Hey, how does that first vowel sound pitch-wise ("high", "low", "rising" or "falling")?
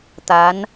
rising